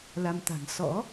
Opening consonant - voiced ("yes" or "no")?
yes